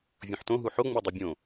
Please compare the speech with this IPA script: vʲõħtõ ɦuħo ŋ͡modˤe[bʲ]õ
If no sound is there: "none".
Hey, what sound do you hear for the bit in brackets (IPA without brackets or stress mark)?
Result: bʲ